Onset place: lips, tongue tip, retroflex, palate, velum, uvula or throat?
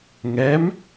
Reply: velum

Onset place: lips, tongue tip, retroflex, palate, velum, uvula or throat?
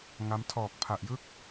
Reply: velum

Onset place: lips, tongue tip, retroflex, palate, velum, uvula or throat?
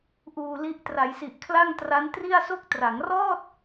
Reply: throat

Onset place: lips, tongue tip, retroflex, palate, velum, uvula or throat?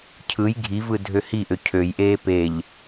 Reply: palate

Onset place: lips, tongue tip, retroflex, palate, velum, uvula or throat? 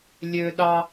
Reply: tongue tip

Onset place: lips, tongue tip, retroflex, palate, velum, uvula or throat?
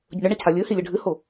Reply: palate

